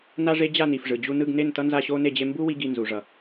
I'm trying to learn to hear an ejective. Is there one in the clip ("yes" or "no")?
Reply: no